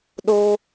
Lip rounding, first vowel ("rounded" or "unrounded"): rounded